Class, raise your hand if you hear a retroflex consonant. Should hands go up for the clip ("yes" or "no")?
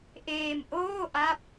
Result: no